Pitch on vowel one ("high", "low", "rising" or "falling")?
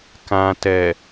low